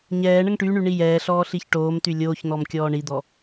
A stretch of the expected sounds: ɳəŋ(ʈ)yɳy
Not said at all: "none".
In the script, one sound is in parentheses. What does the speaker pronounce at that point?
ʈ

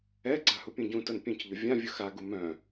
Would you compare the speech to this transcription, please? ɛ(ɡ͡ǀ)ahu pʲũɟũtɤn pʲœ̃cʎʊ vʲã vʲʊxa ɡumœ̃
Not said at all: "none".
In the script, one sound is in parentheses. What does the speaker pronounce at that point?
ɡ͡ǀ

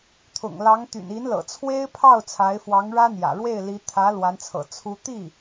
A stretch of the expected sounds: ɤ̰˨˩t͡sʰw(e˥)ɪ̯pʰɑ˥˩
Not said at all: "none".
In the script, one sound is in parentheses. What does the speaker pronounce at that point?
e˥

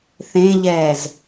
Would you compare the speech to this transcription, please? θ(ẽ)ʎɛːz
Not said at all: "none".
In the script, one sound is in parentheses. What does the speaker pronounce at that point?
ẽ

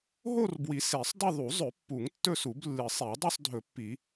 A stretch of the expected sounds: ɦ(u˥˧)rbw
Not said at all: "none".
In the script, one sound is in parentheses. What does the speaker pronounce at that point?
o˥˧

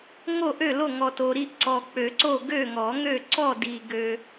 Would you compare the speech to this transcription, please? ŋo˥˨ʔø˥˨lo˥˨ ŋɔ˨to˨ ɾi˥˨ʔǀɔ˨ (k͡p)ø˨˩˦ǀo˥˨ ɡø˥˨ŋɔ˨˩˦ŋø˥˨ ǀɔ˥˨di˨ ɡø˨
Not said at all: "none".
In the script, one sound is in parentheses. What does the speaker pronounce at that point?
k͡p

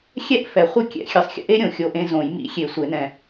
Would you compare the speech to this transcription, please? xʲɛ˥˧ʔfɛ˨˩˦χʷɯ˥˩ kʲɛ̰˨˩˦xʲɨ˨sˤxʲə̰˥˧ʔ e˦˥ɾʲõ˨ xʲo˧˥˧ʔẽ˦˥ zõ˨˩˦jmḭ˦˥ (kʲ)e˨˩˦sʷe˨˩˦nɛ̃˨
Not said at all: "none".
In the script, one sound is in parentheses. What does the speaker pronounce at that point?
xʲ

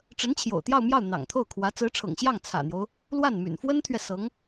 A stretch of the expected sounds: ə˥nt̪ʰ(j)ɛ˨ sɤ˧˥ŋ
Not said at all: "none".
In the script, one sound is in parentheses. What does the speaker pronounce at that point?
ɥ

